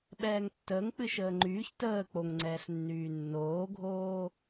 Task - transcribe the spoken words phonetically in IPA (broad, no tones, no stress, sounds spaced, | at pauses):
ɓ ɛː ŋ tː əː ŋ k͡p ɨ ʃ əː ŋ͡ǃ yː ç t əː k͡p o ŋ ŋ͡ǀ ɛː ɬ nː yː nː oː ɡʱ oː